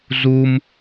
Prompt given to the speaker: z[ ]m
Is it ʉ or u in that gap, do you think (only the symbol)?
u